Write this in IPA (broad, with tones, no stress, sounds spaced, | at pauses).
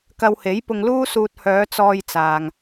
k ɐ˧ w h e˨˥ j p ʊ˧ ŋ l uː˥ s uː˧ t̚ h œː˨˧ t͡s ɔː˧ j t͡s aː˨ ŋ